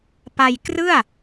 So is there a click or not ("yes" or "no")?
no